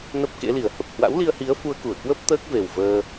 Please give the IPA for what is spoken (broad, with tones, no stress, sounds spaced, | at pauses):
n ə˦˥ p̚ k ḛ˧˥ l i˨˩ ə̯ h ə˨˩ p̚ h w a̰˧˥ w l i˧ ə̯ h i˨˦ ə̯ f u˧ ə̯ k u˧˩ ə̯ k w ə˦˥ p̚ t̪ əː˦˥ k̚ v e˨˩ w v əː˧